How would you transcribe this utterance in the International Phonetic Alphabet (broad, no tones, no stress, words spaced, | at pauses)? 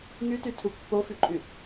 ŋytytʰu pːofyǃʼy